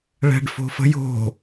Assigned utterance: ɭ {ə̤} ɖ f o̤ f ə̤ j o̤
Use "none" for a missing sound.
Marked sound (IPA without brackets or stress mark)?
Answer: ɛ̤